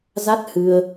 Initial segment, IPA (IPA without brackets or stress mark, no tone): z